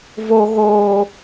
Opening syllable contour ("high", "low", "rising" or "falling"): high